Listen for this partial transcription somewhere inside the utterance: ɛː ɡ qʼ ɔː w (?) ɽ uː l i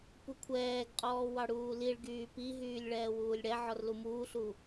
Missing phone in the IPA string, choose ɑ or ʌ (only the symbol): ɑ